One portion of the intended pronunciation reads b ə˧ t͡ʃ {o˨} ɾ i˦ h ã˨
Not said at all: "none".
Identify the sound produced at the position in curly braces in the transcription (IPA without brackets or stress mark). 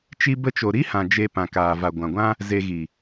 o˨